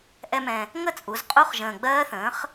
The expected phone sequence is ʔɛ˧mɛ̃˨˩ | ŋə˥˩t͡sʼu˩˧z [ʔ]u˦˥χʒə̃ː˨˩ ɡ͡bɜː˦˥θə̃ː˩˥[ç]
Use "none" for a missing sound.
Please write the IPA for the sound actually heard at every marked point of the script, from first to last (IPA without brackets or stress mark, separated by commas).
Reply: qʼ, χ